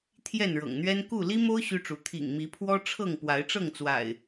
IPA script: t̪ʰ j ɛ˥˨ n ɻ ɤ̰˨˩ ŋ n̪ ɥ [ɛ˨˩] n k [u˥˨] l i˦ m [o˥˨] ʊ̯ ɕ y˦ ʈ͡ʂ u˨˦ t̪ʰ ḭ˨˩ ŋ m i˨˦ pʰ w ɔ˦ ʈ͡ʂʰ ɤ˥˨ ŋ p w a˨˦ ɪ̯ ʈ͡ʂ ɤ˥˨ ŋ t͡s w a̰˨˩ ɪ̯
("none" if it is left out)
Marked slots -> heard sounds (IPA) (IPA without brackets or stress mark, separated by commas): ɛ˦, u˥˨, o˦